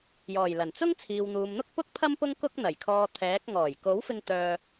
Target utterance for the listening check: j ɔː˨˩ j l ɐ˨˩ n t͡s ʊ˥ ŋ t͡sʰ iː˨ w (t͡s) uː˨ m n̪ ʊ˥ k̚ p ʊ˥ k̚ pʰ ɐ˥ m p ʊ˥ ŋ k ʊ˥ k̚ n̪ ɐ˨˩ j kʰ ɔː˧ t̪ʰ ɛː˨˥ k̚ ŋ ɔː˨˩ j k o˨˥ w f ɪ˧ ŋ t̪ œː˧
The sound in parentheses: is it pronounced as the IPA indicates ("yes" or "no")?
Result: no